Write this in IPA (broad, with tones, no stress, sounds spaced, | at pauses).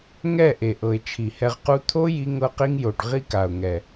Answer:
ŋ ɛ˦˨ ʔ e˨ ʔ ɤ˨ ɪ̯ t͡ʃʰ i˨ h ɛ˧ ʁ q u˦ t̪ʰ o˦ j i˦ ŋ ɤ˦ q i˦ ŋ j o˨ ɖ ʁ i˦ k a˨ ʊ̯ ŋ ɛ˨